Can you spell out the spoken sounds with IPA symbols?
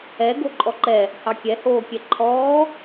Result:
ɛ ɡ o ǃʼ ɔ ǃ ɛ | h ɑ kʲ ɛ h oː kʲ ɛ ǃʰ ɔː

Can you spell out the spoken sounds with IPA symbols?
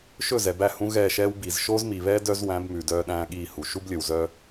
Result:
ʃ ɵ˦˨ z ɛ˨ b æ˦˨ h ũ˦ ɣ ɛː˦˨ ʃ ɛː˦ w b i˨ z ʃ oː˦ z m i˨ β ɛː˦ d œ˦ z w æ̃˨˦ b m ʉ˨ d œː˦ ɗ æ̃ː˦ ɠ iː˦˨ h u˨ ʃ u˦ b lʲ ɵ˨ w z œ˦

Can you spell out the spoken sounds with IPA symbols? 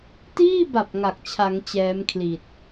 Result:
t iː˥˩ b a˨˩ p̚ ŋ a˨˩ k̚ t͡ɕʰ a˩˦ ŋ t͡ɕ ɛː˦˥ m kʰ l i˨˩ t̚

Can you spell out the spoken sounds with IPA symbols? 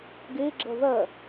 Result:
ɡ eː ɡ͡ǁ ɐ ð ɐ

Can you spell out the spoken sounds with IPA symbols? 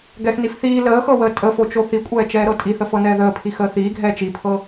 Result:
ɡ ɛ x n i f θ iː l əː x ɤ w əː tʼ ə f o t͡ʃ o θ i kʷʼ ɛː t͡ʃ ɛː ɾ ɤ tʼ i θ ə f ɤ n ɛː ð əː pʰ i x əː θ iː ɡʱ ɛː t͡ʃ i pʰ ɤ

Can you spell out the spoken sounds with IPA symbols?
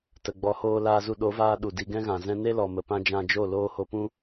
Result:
t ə˨ ɡ͡b ɔ˨˦ h oː˧ l aː˧ z u˧ ɗ o˨˦ v aː˧ ɗ u˨ d i˧ ɡ ɛ̃˦ ɣ ã˨ z ɛ̃˧ n e˦ l ɔ˨ m ə˨ p ã˧ d͡ʒ ã˧ d͡ʒ o˦˨ l oː˦ h o˧ p ũ˦

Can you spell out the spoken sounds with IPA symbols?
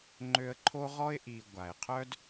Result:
ŋ͡ǃ ø˧ ə̯ ǃʰ o˦ ʁ ɔ˦ ɪ̯ ʔ i˨ ɡʷ a˨ ɪ̯ qʰ œ˦ d

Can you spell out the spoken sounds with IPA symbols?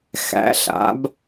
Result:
x æ̰˩˥ ɬ a̰˩˥ b

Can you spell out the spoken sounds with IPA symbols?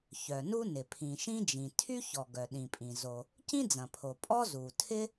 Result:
ç œ˩ n u˥ n ɪ˩ pʰ ĩ˩ ʃ ĩ˥ d͡ʒ ĩ˩ tʰ y˥ ç ɔ˩ ɡ œ˩ ɗ ĩ˩ pʼ ĩ˩ z o˩ | c ĩ˥ d͡z ɐ̃˩ pʰ o˩ pʼ ɔ˥ z u˩ tʰ ɪ˥

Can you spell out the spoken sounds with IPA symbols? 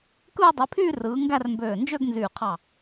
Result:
k ɯː˥˧ dˤ i˨˦ pʰ yː˥˧ r ɯː˨˦ ŋ ɡ æ˥˧ r m b øː˧˩ n d͡ʒ ø˥˧ ɡ n z yː˧˩ qʰ ɑ˧˩

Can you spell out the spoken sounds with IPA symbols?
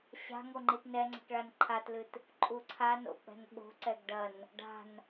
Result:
ɕ a̤ ŋ o ŋ͡ǃ i t n ɛ ŋ͡ǀ ɛ̤ k ɭ a n ǃʰ a t l ɨ t | ǃʼ u ǀʰ a n o̰ k͡p ɛ̤ n ɓ o̤ ǀ ɛ ɡ ɖ ɐ n | ɖ a̤ n

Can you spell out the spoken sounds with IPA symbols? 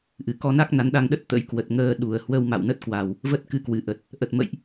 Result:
ʔ ɨ˨˩ k ɔ˧ n a˦˥ k̚ n a˨˦ n ɗ a˧ ŋ ɗ ə˦˥ t̚ t̪ ə̰˧˥ j k w ə˨˩ t̚ ŋ əː˧ ɗ u˨˩ ə̯ h w ə˧ w m a̰˧˨ w n ə˦˥ t̚ k w a˨˩ w | v ə˦˥ t̚ k ɨ˨˦ k w ɨ˨˩ ʔ ə˨˩ t̚ | ʔ ə˨˩ t̚ m ə̰˧˨ j ʔ

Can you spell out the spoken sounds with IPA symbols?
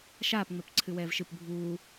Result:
ʃ aː p ŋ͡m ɛ p ǀʰ ɨ w ɛː v ʃ ɨ p bʱ uː

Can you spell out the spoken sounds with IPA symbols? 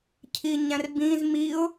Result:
cʰ i ɲ æ̃ r b ĩ z m i ʊ̯

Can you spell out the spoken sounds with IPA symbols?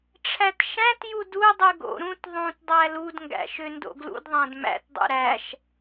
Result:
ʈ͡ʂʰ æ t ʃ æ̃ t j u d u dˤ ʉ ɡ o̰ ɾ ũ t ðˤ ũ t dˤ æ l u d ŋ ɡ æ̰ ʃ ø n d o̰ ɡ l ṵ d ðˤ æ̃ d m æ̰ t dˤ ṵ ɾ æ ʃ

